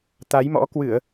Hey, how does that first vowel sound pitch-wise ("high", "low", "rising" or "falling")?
rising